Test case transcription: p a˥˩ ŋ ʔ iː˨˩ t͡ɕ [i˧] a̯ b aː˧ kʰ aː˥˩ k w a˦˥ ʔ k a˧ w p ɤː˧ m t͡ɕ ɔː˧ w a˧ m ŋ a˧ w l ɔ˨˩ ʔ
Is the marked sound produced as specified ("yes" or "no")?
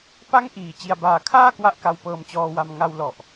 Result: yes